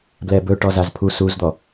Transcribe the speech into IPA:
b l ɛ b ɵ ʈ ɔ z a z pʰ u s u z d̪ ɔ

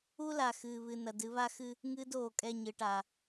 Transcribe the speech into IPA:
u˦ l a˨ x ɨː˨ β ɨ˨ n ɐ˨ d ɨ˨˦ β a˦ x ɨ˦ | ŋ ɨː˦ d oː˨ kʼ ɛ˦˨ ɲ ɨ˨ ʈ a˨

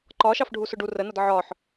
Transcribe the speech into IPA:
ǃ ɒ ʃ ɑ f ɖʱ u s ʊ ɖ u r ə n ʌ d ʕ ɒ ħ

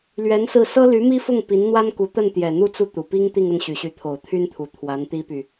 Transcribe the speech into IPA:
l ɥ ɛ˧˥ n s ɹ̩˥˩ s ɤ˥ l y˧˥ m i˥ f ʊ˥˩ ŋ p i˧˥ n n̪ w a˥ n k u˧˥ t̪ ə˥˩ n t̪ j ɛ˨˩ n̪ u˥ t͡s u˥˩ t̪ u˨˩ p i˥ ŋ t̪ i˥˧ ŋ ə˥˩ n ɕ y˨˩ ɕ y˧˥ t̪ʰ o˨˩ ʊ̯ t̪ʰ y˥ n t̪ʰ u˨˩ t̪ʰ w a˧˥ n t̪ i˥ p y˨

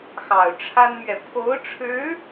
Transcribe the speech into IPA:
x ɑ˨˩ ʊ̯ ʈ͡ʂʰ a˥ n m ɥ ɛ˨ pʰ o˧˥ ʊ̯ ʈ͡ʂʰ ɻ̩˧˥

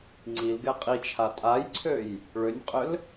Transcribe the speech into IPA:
ŋ͡ǀ i l ɡ ɛ qʼ i t͡ʃʰ a tʼ a j ǀʰ ø j | ɭ ʏ nʲ qʼ ʏ l

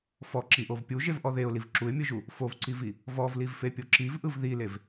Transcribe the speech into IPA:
f ɔ ǁ i ʔ o v pʲ u ʒ e v ʔ ɔ ð e ʊ̯ l i v ǁ u ɪ̯ mʲ ɯ ʒ u | f o v ǀ i v i | v ɔ v l i v f e pʲ o ǁ i v ʔ ɯ v ð i l e v

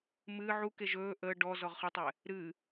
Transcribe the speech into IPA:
m ɨ ʕ u k e ʒ ɵː ʔ əː ɖ ɔ z ɔ ʁ χ ɨ tˤ ɛ | ɾ ɨ

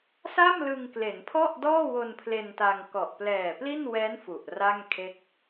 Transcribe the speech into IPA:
s a˥˩ m l ɯ˧ ŋ k l e˩˦ n pʰ ɔ˥˩ ʔ d ɔː˥˩ w o˧ n pʰ l e˧ n t a˧ ŋ k ɔ˨˩ ʔ p l ɛː˨˩ p l i˥˩ n w ɛː˦˥ n f u˨˩ ʔ r a˥˩ ŋ kʰ e˥˩ k̚

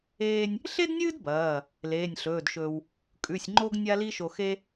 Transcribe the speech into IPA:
eː˧ nʲ | ɬ e˥ d nʲ ɨː˥ d b ɐː˩˧˩ | l eː˩˧˩ nʲ ɬ ɵː˩˧˩ d ʃ ɵː˧ w | kʼ ʉ˩˧˩ sʲ ŋ͡ǃ o˥ ɡ nʲ a˥ l i˥ ʃ o˧ x e˥

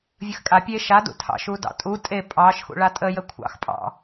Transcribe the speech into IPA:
vʲ ə x kʼ a pʲ e ʃ a d ṵ tʰ ɑ̰ ʃ u d ɑ̰ tʼ u tʼ e pʼ ɑ ʃ x ṵ ɭ a tʼ ə j ə kʷʰ ɑ̰ x pʼ ɑ̰

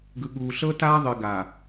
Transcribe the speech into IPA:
ɡ ɯ˨ ɠ uː˨ ɬ ɤ˦ t aː˦ ðˤ i˨ ɡ a˨

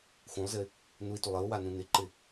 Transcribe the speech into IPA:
x ũ lˠ z ɪ | n u i̯ t u lˠ ɘ u̯ w a n ũ n ɪ ǃ ɪ

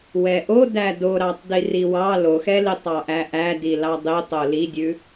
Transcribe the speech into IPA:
w ɛ ʔ o d æ d o ɾ ɑ tˤ d i r i w ɑ l o x ɛ l i tˤ ɑ ʔ æ ʔ æ d i l ɑ dˤ i tˤ o l i dʲ ʉ

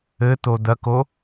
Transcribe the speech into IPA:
ɘ t̪ o d̪ ɐ k o

